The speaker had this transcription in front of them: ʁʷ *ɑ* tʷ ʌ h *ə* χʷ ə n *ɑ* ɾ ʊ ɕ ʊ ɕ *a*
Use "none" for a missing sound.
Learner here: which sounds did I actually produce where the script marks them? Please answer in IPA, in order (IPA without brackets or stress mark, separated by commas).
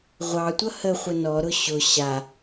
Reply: ɑ, ə, ɔ, a